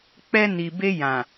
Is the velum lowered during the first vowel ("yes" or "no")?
no